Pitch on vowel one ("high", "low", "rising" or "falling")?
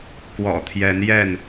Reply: low